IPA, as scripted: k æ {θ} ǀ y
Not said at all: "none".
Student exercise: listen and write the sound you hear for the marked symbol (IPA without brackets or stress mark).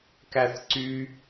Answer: θ